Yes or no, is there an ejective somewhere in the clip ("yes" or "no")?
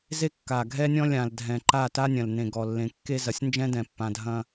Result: no